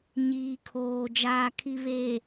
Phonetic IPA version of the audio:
ɲ iː˨ kʰ oː˨ d͡ʒ aː˨ kʰ i˨ β e˨

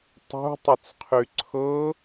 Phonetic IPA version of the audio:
tˤ ṳ tˤ ʏ t͡s qʰ y ǀʰ ɤ

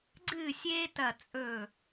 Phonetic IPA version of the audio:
ɡ͡ǀ ɨː˥˨ sʲ eː˥ t ɐ˧˩ t͡sʼ ɵ˧˩

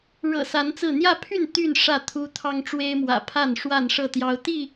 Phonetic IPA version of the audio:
ɻ ɤ̰˨˩ s a˨˦ n t͡s ɹ̩˥˨ n̪ j ä˥˨ pʰ y˥˨ n t̪ y˥˨ n ʂ ä˥˨ t̪ʰ u˦ t̪ʰ ɑ˦ ŋ ʈ͡ʂ w e˦ ɪ̯ m w ä̰˨˩ pʰ a˥˨ n ʂ w a˥˨ n ʂ ɤ˥˨ t̪ j ɑ˦ ʊ̯ t̪ i˥˨

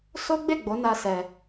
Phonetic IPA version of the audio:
s o˦ ɡ͡b e˦˨ ɡ͡b o˨˦ n a˦ s ɛ˧

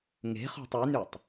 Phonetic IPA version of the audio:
ŋ e̤ χ ɔ̤ tˤ y n y tˤ

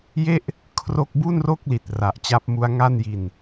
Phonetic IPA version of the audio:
j e˥˩ ʔ | kʰ r o˥˩ k̚ b u˥˩ n r o˥˩ k̚ l i˨˩ t̚ r a˨˩ ʔ t͡ɕ a˦˥ p̚ m u˦˥ a̯ ŋ a˥˩ n j i˨˩ n

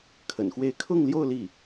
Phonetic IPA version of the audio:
kʰ ə̰˨˩ n x w e˥˧ ɪ̯ kʰ ʊ˥˧ ŋ l j o˥˧ ʊ̯ l i˥˩

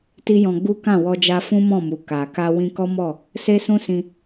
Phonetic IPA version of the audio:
t i˦ j ɔ̃˧ ɡ͡b u˦ k ã˦˨ w ɔ˧ d͡ʒ a˧ f ũ˦ m ɔ̃˦˨ m u˨ k a˨ k a˧ w ĩ˦ k ɔ˦ m ɔ˦˨ | s e˦ s ũ˦ s ĩ˧

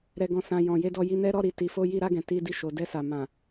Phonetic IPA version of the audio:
ɾ ɛ˨ ɡ ɔ̃˨ s ã˨ j ɔ̃˨ j e˧ d ɔ˧ j i˧ n ɛ˦ ɾ ɔ˦˨ ɾ i˨ t i˨ f o˧ j i˧ ɾ a˧ ɡ ɛ̃˨ t i˧ d i˧ ʃ o˨ d ɛ˧ s a˨ m ã˨

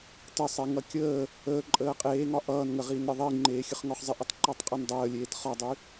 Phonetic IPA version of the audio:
t ə sˤ e ŋ ʌ kʲ əː | əː ǃʼ əː qʼ eː ŋ ɒ ʔ ʌː n ŋ ə ʁ iː n ɾʲ ʌ ðˤ i ŋ͡ǃ eː xʲ ə χ ŋ ɔ χ zˤ ɪ ʔ ə tˤ ǃ əː tˤ qʼ ə n dˤ əː lʲ eː t χ ɒ dˤ y

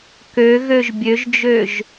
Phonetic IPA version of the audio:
k ø ɣ ø ʒ bʲ ø ʒ d͡ʒ ø ʒ

